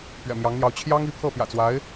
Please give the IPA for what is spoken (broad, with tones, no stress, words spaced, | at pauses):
pɥɛ̰˨˩mjɑ˧˥ŋn̪jɑ˧˥ʊ̯ t͡ɕʰjɑ˥ŋi˧˥ pʰɤ˥˩pjä̰˨˩t͡swa˧˥ɪ̯